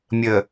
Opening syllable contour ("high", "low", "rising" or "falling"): low